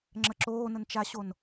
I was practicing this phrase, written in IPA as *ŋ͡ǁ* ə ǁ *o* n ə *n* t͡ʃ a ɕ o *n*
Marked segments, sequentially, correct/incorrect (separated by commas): correct, incorrect, correct, correct